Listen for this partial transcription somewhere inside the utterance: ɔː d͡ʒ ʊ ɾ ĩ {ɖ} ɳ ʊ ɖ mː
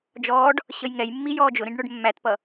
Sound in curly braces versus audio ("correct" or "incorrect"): correct